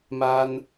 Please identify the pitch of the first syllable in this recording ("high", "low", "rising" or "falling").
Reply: high